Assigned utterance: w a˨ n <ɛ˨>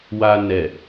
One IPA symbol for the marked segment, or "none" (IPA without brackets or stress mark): ɛ˨